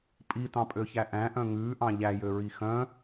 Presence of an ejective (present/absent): present